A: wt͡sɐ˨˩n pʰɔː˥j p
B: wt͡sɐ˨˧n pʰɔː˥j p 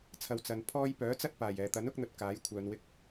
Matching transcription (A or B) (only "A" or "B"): B